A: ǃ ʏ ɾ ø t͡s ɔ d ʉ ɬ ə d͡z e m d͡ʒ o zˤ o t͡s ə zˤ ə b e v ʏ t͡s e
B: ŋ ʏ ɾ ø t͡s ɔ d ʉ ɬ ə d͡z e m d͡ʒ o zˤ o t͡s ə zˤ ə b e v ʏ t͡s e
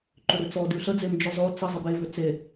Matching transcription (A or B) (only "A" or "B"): A